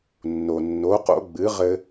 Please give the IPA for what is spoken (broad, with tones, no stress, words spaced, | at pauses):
nːo˩nːo˩˥qo̰˩˥ ɡ͡bɨ˩˥ʁɘ˧